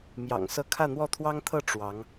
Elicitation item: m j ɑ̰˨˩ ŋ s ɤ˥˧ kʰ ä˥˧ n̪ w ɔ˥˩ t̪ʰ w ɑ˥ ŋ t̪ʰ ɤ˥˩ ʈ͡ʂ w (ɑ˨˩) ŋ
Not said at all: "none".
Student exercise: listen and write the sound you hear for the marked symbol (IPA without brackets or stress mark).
ɑ˧˥